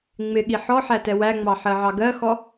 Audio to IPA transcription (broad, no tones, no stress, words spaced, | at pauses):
ŋ͡mɪɠi ħɔħæ tɛwæŋ͡mɑ ħɜʕɑɡɜxɔ